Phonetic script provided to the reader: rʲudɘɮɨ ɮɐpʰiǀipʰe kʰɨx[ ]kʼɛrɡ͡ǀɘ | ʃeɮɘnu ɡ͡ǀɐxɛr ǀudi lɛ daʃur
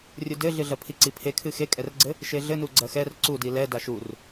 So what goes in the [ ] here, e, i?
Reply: e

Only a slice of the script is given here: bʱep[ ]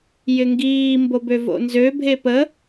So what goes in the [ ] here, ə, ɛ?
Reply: ə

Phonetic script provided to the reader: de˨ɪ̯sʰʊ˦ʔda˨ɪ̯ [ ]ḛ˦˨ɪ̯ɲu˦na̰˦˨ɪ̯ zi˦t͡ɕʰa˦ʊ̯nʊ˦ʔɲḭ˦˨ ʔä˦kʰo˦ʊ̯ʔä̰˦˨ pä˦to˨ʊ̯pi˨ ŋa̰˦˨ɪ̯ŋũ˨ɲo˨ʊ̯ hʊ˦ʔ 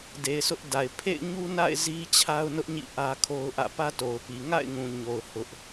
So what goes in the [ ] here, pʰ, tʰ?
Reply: pʰ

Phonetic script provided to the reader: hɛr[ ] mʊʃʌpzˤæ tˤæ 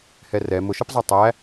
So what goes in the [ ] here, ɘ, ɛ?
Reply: ɛ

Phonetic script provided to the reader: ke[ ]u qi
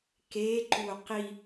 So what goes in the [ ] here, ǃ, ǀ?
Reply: ǃ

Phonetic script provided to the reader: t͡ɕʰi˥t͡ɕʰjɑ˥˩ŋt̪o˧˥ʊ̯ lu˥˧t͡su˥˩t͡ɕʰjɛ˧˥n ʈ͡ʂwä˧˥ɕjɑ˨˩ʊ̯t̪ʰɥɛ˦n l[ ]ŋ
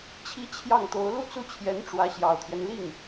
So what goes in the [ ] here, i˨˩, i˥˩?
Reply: i˥˩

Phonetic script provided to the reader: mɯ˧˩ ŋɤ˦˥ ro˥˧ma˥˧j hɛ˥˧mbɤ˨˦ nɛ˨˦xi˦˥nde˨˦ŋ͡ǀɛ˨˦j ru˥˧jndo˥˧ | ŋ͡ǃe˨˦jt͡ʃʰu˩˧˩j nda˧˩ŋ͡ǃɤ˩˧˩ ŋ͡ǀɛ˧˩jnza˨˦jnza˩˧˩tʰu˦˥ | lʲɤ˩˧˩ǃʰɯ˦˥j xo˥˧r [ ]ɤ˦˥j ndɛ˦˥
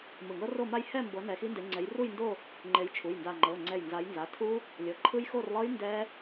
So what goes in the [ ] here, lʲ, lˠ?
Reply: lˠ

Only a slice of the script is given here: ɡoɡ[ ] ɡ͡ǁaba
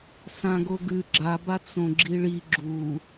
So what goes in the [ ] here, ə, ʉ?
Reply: ʉ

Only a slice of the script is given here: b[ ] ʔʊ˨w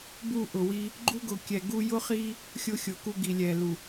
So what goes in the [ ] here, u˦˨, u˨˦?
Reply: u˦˨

